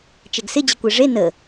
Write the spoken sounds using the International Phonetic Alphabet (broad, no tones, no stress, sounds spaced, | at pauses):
t͡ʃ ɛ ɡ s ɪ d͡ʑ ɪ kʷ e ʐ e n ə